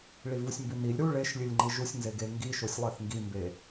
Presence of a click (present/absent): present